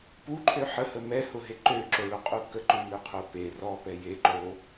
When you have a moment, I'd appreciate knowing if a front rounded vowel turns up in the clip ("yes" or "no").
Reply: yes